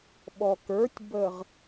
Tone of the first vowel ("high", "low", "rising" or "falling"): low